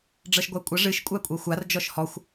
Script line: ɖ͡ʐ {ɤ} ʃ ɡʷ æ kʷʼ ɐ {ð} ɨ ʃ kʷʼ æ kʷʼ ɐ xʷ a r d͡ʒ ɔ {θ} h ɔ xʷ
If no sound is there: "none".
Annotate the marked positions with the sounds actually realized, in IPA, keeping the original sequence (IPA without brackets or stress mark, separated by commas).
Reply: ɤ, ʐ, ʃ